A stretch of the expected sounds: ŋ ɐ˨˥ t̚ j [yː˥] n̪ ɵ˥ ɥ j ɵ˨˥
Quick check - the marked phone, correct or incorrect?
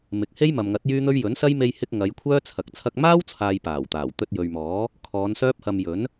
correct